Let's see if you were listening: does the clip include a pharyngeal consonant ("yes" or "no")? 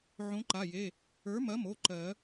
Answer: yes